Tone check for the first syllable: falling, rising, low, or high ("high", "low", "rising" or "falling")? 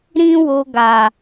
high